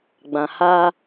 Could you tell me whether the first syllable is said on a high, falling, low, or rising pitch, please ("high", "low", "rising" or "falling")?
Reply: low